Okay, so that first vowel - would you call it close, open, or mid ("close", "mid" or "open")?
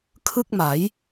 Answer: close